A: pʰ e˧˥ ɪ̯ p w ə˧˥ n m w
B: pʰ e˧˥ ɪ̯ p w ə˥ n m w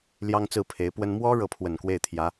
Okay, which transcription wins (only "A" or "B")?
B